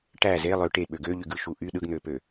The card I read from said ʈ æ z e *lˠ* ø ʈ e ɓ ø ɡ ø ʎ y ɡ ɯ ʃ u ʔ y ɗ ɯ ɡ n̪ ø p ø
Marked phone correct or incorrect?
correct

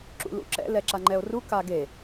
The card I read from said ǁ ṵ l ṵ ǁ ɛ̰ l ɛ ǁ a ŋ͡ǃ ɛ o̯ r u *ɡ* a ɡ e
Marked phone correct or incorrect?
incorrect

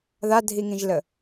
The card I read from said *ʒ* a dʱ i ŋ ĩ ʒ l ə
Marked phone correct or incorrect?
incorrect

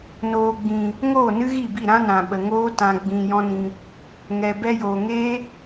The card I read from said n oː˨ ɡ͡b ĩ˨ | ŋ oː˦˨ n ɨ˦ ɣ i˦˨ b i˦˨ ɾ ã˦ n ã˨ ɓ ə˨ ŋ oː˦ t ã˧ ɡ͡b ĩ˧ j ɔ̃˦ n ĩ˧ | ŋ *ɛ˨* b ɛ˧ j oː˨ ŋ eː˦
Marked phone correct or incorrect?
correct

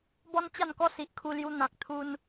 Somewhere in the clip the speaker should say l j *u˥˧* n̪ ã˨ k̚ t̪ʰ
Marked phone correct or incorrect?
incorrect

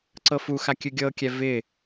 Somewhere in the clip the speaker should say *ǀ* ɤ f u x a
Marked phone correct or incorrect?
correct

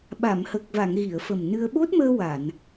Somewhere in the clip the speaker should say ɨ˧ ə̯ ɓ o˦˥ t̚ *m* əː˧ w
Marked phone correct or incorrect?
correct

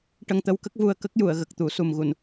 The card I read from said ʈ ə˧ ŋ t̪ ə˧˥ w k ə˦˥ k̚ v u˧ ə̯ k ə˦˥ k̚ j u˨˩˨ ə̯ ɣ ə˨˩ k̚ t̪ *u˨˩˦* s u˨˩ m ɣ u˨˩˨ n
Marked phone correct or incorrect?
correct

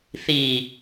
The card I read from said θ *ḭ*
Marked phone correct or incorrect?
incorrect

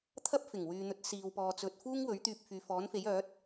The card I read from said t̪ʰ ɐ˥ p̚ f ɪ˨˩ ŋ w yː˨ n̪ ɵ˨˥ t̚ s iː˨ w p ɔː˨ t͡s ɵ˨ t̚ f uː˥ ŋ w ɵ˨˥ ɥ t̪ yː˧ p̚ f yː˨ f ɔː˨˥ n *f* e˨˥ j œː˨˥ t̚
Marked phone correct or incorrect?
correct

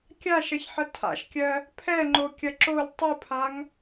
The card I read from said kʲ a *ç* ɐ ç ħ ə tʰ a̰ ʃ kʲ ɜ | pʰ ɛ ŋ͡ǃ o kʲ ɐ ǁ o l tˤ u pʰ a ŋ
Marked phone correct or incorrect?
incorrect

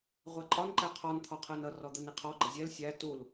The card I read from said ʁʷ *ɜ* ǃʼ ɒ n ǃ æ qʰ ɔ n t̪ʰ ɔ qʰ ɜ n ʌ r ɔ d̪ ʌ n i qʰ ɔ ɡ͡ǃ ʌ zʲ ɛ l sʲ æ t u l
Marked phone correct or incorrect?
incorrect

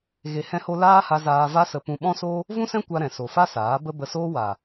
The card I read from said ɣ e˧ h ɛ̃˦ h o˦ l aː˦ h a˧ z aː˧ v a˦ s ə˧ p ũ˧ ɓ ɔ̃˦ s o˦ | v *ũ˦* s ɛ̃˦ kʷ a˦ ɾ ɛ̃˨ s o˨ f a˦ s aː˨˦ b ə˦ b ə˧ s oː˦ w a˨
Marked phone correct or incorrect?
correct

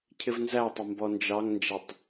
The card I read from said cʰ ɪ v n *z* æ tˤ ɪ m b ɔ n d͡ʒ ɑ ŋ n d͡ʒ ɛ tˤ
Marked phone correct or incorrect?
correct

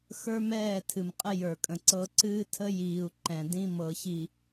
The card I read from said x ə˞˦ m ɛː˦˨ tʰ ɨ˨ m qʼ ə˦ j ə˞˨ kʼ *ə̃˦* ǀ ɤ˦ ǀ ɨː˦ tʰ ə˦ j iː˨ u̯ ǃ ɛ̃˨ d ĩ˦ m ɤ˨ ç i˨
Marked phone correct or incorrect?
incorrect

